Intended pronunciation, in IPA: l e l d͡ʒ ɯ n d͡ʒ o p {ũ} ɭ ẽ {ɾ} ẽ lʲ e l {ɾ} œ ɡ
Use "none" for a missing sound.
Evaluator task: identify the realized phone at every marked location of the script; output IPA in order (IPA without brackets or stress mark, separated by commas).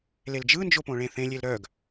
õ, θ, ɾ